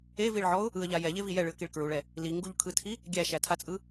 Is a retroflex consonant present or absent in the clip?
present